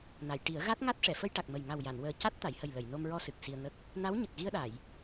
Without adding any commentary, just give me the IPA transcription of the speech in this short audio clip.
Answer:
n a˨˩˨ j ʈ i˨˩˦ ə̯ ɣ a˦˥ t̚ ŋ a˦˥ t̚ ʂ ɛ˨˩˨ f ə˧ j ʈ a˨˩ k̚ m ə˨˩ j ŋ a˨˩ w j a˨˩˨ n w əː˨˩ c a˦˥ t̚ t̪ a˨˩˨ j h ə˨˩ j l ə˨˩˨ j n o˧ m ɹ ɔ˧ s ɨ˨˩ k̚ s i˧ ə̯ ŋ ə˦˥ k̚ | n a˧˥ w ɲ ə˨˩ k̚ ɣ i˧ ə̯ ɗ a˨˩˨ j

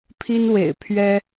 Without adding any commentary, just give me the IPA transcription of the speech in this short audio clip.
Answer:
pʰ i˦ n w ḛ˨˩ ɪ̯ pʰ ɥ ɛ˦

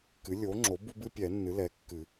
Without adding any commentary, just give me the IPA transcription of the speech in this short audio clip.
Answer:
k ɨ˩˥ lʲ o˩˥ ŋ͡ǁ o˩˥ b u˦ b ɨ˦ pʲ ɛ˨˩˦ nː ɨ˩˥ l ɛ˩˥ kː ɨ˨˩˦

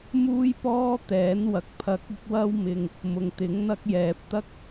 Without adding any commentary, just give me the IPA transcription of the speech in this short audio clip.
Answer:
m uː˥ j p ɔː˥ t̪ ɛː˨˥ n w ɐ˨ k̚ pʰ ɐ˧ k̚ ɪ˥ k̚ w ɐ˥ w m ɪ˨ ŋ | m ʊ˨ ŋ t̪ ɪ˨˥ ŋ n̪ ɐ˥ k̚ j ɛː˨ p̚ t̪ ɐ˥ k̚

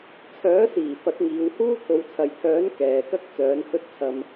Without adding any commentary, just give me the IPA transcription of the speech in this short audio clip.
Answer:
t͡sʰ œː˨˥ s iː˨˩ f ɐ˨˥ t̚ ŋ iː˨˧ w h uː˥ t̪ʰ o˨˧ w t͡sʰ ɐ˨ j t̪ʰ œː˨˥ n k ɛː˨ k ɐ˥ k̚ t͡s œː˨˥ n h ɵ˥ t̚ t͡sʰ ɐ˧ m

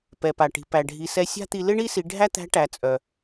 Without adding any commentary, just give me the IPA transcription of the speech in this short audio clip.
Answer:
p ɛ˩ p a˩ ʈ i̤˩ p æ˩ ɖʱ i˩˧ s ɛ˧˥ sʲ a̤˥ t̪ i˧ l ɪ˥ ɳ i˥ s i˩˧ ɖʱ æ˥ t̪ æ̤˧˥ ʈ æ˩˧ t͡sʼ œ˩

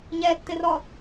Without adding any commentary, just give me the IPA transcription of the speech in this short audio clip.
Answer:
ɲ ɛ tː ɪ r ɔ

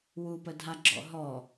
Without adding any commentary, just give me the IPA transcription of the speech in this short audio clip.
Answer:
w u p ə dʱ a ɡ͡ǁ ɔ̰ ɦ ɔ

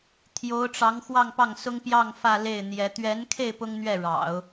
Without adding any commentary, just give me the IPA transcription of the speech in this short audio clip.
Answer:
t̪ʰ j o˧˥ ʊ̯ ʈ͡ʂ ɑ˧˥ ŋ x w ɑ˥˧ ŋ p ɑ˥˩ ŋ s ʊ˥ ŋ p j ɑ˥˧ ŋ f ä˥˧ l e˥˩ ɪ̯ n̪ j ɛ˧˥ t̪ ɥ ɛ˧˥ n kʰ e˥˩ ɪ̯ p ʊ˥ ŋ n̪ ɥ ɛ˥˩ ɻ ɑ̰˨˩˦ ʊ̯

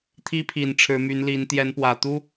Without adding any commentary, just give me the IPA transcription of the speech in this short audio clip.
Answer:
t̪ʰ i˦ pʰ i˨˩ n ʈ͡ʂʰ ɻ̩˨˦ m y˨˦ n l i˨˦ n t̪ j ɛ˨˦ n p w ä˨˩ t̪ u˦

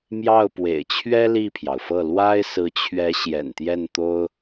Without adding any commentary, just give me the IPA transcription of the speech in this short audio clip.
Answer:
m j ɑ˥˩ ʊ̯ p w ḛ˨˩ ɪ̯ t͡ɕʰ ɥ ɛ˥ l i˥˩ pʰ j ɑ˩ ʊ̯ f ɤ˥˩ l w a˥ ɪ̯ s ɹ̩˧˥ t͡ɕʰ ɥ ɛ˧˥ ɕ j ɛ̰˨˩ n t̪ j ɛ˥˩ n t̪ o˥ ʊ̯

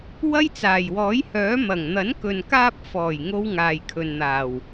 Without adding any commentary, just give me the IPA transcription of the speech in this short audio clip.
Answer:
w ɐ˥ j t͡s aː˨˩ j w ɔː˨˥ j h œː˨˥ m ɐ˨˩ ŋ n̪ ɐ˨˥ n k ɵ˨ n k aː˧ p̚ f ɔː˨˩ j ŋ o˥ w ŋ aː˨ j kʰ ɵ˨ n n̪ aː˨˩ w

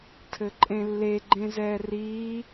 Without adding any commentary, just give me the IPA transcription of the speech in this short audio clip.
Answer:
tʰ ɘ ǃʼ ẽ lː e ɡ͡ǃ ẽ z ɛː r iː

